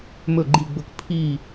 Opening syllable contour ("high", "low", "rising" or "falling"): falling